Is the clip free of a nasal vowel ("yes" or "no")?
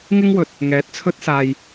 yes